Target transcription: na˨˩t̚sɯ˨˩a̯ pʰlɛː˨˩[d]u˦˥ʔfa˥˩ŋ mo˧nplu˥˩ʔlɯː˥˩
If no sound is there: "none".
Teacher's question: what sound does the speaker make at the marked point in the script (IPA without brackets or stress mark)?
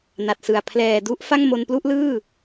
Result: d